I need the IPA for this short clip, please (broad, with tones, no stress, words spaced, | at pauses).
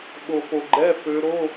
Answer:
ɓo˨po˨ɡ͡ǃɛ˧˥˧ fø˧˥ ɾo˧˥˧